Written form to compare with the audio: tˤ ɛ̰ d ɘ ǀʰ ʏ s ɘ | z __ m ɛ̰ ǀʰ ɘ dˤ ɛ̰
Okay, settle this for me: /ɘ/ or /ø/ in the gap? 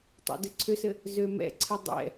ø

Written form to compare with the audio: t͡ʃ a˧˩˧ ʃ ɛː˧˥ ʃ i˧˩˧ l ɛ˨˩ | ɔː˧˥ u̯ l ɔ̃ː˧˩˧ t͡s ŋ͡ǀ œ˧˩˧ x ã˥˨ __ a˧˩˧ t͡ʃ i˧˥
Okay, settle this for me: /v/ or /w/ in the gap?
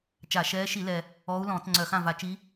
v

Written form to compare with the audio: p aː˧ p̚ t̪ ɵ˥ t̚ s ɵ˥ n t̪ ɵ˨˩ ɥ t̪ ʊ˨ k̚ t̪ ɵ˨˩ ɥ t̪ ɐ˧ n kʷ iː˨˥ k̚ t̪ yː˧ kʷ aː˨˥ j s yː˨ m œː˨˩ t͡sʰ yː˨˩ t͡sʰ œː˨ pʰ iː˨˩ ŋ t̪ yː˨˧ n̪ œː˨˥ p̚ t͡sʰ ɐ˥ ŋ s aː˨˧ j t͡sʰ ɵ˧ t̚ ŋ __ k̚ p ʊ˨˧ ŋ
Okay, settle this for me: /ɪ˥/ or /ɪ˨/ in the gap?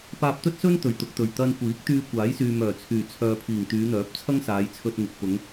ɪ˨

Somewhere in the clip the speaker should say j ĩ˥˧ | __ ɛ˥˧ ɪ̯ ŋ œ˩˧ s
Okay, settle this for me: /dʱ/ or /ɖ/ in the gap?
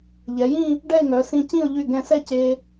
ɖ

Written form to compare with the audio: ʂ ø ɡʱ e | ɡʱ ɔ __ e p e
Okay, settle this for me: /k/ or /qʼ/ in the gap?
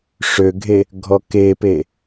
k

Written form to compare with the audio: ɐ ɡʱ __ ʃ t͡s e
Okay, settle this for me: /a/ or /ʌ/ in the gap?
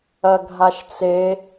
a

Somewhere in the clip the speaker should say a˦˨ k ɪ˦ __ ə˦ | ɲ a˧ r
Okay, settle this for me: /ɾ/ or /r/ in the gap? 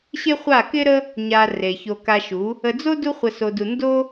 ɾ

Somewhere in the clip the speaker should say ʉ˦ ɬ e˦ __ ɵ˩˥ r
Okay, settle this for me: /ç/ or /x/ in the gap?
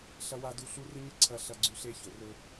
ç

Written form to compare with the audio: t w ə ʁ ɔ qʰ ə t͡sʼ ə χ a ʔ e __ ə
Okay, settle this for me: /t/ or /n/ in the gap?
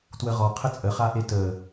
t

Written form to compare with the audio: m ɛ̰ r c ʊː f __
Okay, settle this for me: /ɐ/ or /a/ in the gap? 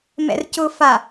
a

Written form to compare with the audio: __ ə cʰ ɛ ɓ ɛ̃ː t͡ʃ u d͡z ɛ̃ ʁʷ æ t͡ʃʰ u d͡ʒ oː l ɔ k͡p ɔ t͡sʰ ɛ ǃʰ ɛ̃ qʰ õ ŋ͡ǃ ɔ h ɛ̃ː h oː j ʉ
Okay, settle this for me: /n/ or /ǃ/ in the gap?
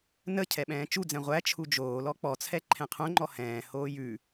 n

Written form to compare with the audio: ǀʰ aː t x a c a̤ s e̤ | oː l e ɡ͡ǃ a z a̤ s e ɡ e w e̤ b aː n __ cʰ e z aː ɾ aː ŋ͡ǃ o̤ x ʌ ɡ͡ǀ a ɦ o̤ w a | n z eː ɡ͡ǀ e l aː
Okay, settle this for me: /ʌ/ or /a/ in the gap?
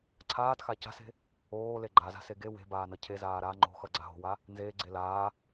ʌ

